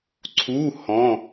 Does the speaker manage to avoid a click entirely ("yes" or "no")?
no